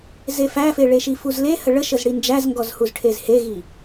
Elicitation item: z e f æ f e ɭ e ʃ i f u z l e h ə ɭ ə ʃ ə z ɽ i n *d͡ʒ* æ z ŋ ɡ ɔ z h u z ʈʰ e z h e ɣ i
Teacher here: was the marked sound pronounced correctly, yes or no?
yes